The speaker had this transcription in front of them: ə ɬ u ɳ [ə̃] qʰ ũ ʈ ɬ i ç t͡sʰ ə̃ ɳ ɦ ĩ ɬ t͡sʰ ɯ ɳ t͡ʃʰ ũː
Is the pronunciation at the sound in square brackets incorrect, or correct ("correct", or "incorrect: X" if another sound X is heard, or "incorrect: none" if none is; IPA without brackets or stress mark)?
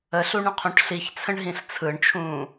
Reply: correct